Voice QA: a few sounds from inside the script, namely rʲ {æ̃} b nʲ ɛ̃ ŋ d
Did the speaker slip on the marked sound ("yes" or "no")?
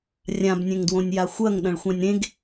yes